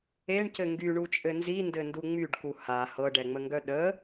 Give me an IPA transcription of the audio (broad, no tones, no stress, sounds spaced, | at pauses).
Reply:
e ɳ c ɘ ŋ ɡ y ɳ u t͡ʃʼ ɘ n z i n d ɘ n d u ŋ͡m y ɖ k u h a h ɤ ɖ ɛ ŋ͡m ə ŋ ɡ œ ɗ ə